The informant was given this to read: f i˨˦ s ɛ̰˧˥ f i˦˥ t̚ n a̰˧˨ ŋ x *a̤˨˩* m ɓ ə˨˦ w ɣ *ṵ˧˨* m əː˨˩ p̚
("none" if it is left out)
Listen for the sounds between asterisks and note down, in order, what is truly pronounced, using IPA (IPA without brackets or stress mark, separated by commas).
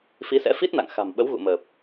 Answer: a̤˨˩, ṵ˧˨